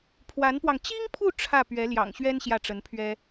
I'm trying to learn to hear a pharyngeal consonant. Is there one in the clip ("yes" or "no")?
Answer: no